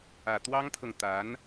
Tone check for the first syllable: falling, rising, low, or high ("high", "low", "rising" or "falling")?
low